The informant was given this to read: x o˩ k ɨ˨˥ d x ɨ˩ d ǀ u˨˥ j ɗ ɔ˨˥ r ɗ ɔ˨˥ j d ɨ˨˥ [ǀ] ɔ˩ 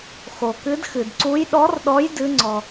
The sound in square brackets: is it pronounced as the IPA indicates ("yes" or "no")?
no